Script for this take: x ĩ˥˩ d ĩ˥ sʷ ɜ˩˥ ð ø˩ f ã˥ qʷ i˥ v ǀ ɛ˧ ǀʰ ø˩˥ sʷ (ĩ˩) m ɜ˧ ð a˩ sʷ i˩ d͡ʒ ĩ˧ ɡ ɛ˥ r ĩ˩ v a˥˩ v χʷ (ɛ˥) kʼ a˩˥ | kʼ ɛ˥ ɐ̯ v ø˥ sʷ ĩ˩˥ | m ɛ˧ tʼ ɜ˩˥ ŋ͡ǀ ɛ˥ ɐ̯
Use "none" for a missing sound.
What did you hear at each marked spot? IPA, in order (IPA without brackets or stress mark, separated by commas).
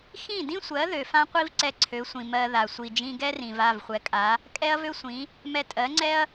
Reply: ĩ˩, ɛ˩˥